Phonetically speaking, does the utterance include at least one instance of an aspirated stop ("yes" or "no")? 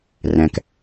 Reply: no